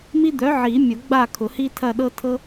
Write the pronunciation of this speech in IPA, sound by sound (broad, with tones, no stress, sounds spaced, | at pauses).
m i˦ d̪ œ˨˥ ʕ i˨˩˦ mʲ ʊ˨˩˦ ɡ͡b a˦˨ kʰ ʊ˨˩˦ h i˦ tʰ ɐ˦˨ ɗ ɤ˦ tʰ ɤ˦